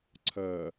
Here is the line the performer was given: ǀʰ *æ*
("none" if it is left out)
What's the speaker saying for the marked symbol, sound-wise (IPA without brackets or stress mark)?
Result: ɜ